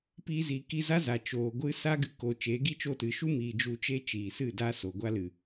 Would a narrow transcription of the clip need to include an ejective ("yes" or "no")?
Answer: no